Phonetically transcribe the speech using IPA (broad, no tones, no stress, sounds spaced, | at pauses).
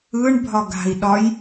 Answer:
ɯ ɳ bʱ ɒ ɡ a̤ i̯ ɗ ɒ j